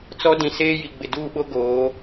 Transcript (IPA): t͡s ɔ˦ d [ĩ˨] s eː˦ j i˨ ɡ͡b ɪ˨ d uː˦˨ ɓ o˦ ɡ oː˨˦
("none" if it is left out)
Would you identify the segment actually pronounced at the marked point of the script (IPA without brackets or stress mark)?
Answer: ĩ˨